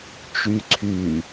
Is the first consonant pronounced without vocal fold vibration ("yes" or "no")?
yes